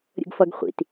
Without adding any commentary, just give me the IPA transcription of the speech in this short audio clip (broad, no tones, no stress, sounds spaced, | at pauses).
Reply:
ɾʲ ə̰ ɡ f ʌ ɡ χʷ ḭ t